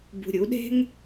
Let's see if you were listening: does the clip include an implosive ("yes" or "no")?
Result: yes